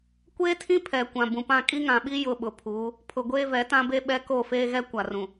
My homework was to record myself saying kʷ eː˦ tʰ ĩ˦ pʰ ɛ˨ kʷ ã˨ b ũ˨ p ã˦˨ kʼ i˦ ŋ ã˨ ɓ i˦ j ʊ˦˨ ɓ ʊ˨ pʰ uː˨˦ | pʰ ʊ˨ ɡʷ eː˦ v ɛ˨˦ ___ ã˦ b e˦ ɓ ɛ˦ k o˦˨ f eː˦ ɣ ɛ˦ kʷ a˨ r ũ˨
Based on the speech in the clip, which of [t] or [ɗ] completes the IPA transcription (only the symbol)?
t